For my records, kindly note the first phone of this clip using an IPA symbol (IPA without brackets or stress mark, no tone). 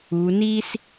u